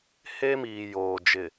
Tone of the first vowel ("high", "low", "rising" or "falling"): high